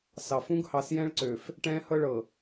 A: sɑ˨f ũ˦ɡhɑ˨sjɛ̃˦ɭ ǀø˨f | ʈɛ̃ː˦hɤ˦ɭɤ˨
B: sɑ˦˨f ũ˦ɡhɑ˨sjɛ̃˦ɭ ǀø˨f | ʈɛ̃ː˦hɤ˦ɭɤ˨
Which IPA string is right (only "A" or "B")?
A